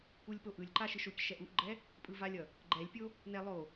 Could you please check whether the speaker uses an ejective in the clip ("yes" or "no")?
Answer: yes